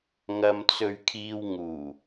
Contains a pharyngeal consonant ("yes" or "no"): no